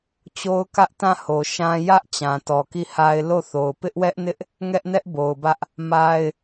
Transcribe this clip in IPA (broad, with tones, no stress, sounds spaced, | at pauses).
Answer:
t͡ɕ o˦ ʊ̯ k ä˦ ʔ t ã˦˨ h o˨ ʃ ã˦ j ä˦ ʔ t͡ɕ ã˨ t ɔ˨ k i˦˨ h a˦ ɪ̯ l o˦˨ θ o˨ ʊ̯ p ɪ˦ ʔ w ɛ˦ ʔ n ɪ˦ ʔ | ŋ ɛ˦ ʔ n ɛ˦ ʔ b o˨ ʊ̯ b ä˦ ʔ | m a˦ ɪ̯